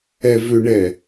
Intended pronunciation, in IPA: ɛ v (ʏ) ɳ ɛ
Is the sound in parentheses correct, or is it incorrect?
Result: correct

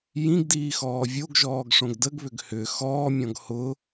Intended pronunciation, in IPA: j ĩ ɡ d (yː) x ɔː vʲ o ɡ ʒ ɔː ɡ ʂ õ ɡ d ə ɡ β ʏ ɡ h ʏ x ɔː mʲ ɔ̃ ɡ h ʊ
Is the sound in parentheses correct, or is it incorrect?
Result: incorrect: iː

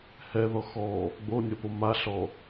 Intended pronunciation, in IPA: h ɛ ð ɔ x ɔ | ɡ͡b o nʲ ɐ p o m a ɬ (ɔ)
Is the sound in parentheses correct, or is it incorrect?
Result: correct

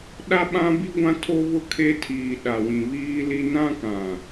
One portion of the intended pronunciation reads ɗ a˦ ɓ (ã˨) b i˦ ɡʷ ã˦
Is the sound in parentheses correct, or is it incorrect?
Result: incorrect: ã˦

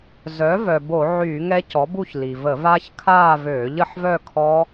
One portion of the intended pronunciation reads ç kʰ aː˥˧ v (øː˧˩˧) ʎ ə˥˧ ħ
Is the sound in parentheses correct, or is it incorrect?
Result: correct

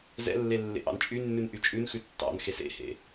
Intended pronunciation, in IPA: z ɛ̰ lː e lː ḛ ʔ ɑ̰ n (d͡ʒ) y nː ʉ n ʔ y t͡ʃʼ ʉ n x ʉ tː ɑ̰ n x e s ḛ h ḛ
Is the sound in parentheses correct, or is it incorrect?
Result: incorrect: t͡ʃʼ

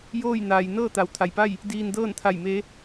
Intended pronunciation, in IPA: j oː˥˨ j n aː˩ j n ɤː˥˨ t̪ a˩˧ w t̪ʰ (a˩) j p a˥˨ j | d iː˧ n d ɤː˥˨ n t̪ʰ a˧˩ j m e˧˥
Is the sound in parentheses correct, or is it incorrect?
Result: correct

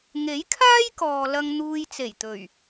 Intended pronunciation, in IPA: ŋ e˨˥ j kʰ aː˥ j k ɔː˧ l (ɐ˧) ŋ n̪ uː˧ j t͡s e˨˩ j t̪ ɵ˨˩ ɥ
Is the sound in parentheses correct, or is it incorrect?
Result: correct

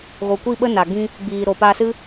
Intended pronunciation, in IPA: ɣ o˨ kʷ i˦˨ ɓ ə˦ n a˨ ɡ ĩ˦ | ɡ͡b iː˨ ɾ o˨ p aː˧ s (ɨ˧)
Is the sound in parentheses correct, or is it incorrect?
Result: incorrect: ɨ˦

